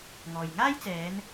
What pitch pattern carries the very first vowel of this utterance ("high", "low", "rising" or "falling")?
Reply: low